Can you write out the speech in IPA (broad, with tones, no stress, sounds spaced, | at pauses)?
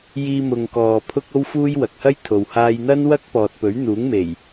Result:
j iː˧ m ʊ˨ ŋ k ɔː˨ pʰ ʊ˧ k̚ o˧ w f uː˧ j w ɐ˨ k̚ h ɐ˥ j t̪ʰ o˨ w h aː˧ j n̪ ɐ˥ n w ɐ˥ k̚ p ɔː˨ t̚ p ɵ˨˥ ɥ n̪ uː˨˥ ŋ m e˨˩ j